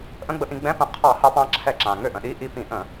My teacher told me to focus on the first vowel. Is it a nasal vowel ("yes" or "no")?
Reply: yes